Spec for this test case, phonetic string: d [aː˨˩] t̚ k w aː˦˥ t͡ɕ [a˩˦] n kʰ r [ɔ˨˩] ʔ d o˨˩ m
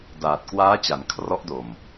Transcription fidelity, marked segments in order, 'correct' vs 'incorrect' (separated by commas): correct, correct, incorrect